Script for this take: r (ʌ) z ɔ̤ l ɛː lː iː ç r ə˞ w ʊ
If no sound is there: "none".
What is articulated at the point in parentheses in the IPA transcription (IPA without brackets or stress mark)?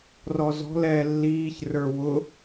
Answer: ɔ